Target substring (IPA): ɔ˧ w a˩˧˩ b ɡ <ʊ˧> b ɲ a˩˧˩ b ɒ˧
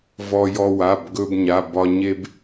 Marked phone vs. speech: incorrect: ɵ˧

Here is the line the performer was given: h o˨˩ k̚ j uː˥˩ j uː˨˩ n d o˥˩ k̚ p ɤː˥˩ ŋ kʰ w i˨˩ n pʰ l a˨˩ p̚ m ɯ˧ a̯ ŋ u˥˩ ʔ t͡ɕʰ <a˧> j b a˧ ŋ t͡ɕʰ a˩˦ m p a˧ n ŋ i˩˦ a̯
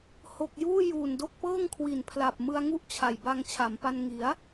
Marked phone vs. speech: incorrect: a˨˩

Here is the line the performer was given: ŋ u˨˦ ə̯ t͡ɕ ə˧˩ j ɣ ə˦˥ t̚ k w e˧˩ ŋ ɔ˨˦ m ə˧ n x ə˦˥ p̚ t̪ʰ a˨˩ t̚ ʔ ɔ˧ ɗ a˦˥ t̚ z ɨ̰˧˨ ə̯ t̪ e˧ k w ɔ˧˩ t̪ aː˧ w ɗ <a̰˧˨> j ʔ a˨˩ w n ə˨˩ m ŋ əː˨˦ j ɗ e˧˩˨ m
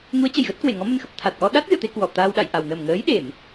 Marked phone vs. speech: correct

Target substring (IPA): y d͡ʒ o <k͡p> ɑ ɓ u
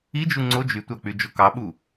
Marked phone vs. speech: incorrect: k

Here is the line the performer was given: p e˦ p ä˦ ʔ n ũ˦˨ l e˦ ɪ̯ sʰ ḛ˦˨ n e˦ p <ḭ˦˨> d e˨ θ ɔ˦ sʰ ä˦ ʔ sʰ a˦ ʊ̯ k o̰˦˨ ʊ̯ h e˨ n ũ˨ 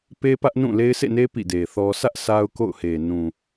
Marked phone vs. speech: correct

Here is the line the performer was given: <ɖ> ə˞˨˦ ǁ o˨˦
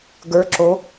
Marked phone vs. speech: incorrect: ɡ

